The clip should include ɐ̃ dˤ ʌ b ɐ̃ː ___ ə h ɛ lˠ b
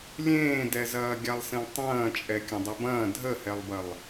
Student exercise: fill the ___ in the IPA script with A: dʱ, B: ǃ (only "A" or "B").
A